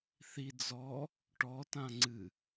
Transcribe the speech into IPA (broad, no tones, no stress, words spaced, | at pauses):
θi d͡zɔ | ʈɔtã ŋ͡ǀɨ